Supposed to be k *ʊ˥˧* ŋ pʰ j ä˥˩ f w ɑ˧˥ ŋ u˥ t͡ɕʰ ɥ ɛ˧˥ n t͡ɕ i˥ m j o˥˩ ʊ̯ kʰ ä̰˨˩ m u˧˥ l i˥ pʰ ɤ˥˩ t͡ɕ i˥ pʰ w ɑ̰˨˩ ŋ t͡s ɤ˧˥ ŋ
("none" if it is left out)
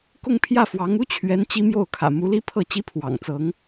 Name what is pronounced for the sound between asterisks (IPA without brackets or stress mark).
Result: ʊ˥˧